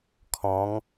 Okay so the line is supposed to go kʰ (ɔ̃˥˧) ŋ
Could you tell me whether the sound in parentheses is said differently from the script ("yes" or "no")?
yes